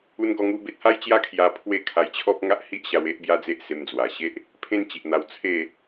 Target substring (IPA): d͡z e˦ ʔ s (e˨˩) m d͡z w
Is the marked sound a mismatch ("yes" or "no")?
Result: yes